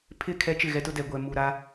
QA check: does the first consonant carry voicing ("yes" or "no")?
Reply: no